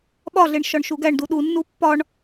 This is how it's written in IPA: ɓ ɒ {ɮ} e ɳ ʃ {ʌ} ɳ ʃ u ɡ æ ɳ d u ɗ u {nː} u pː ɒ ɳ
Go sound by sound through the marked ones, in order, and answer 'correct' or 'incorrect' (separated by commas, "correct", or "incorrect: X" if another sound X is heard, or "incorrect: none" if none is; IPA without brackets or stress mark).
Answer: correct, incorrect: ɒ, correct